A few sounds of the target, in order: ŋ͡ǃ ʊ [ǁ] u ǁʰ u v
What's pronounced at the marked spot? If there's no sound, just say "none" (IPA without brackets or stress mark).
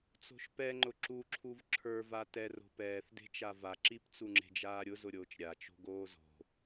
ǁ